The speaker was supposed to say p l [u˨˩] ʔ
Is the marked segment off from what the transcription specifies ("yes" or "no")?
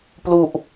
no